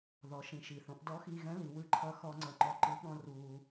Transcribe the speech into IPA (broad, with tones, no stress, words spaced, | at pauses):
ðɔ˩˧ʃĩ˩˧ʃi˩θõ˩˧ʔ dɔ˧˥xiː˧ɣɛ̃˧˥li˩˧ wɯ˧ ǃʰʌ˧xɔ˧ ŋ͡ǀʌ˧ŋ͡ǃɔ˧ǃɯ˧˥ ɠɔ̃˧ ruː˧